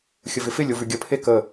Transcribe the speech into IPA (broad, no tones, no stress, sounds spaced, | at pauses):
xʲ ə v ɪ f ɪ lʲ o v ʉ ɡʲ ə pʰ e k ə